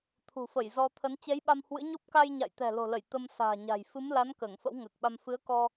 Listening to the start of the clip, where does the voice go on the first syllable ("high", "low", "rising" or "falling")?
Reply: low